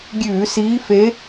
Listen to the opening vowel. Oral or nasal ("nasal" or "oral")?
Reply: oral